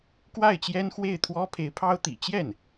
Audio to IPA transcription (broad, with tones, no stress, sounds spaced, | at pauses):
k w a˥˩ ɪ̯ t͡ɕ j ɛ˥ n x w e˥˩ ɪ̯ t̪ʰ w ɔ˥ pʰ e˧˥ ɪ̯ pʰ ɑ˥ ʊ̯ t̪ ḭ˨˩ t͡ɕ j ɛ˥˩ n